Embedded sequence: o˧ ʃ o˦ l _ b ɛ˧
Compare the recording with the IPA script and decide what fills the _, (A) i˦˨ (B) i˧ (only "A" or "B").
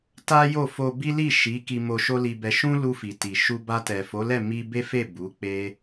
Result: B